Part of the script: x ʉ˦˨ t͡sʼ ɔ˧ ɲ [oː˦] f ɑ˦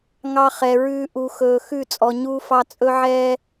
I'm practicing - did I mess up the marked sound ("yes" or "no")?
yes